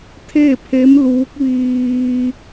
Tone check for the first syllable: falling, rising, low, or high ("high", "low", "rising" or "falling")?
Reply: falling